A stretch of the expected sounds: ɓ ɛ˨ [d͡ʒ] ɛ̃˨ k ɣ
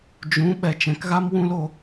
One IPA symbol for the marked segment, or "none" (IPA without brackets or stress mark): t͡ʃ